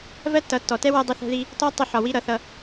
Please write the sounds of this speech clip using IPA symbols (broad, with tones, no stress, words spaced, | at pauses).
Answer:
vɜ˦tːʌ˨˦tːɔ˨tɛ˦ wɜ˧dˤɪ˧θɛ̤˧ði˧ | tɒ˦ tˤɪ˧ħɒ˨wi˧ ɾʌ˨θʌ˧